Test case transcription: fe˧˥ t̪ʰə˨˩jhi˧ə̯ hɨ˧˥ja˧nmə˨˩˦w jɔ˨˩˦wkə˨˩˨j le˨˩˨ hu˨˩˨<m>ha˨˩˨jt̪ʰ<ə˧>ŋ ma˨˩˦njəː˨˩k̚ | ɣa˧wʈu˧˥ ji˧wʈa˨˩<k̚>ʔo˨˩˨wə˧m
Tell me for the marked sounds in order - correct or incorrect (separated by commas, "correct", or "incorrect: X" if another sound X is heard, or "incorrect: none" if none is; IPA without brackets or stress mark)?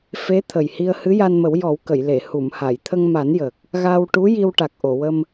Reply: correct, correct, correct